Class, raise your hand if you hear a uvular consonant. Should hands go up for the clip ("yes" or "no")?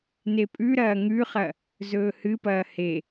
yes